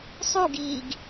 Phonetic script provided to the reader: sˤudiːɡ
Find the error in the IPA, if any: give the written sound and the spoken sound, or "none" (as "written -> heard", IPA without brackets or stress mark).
d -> ɡ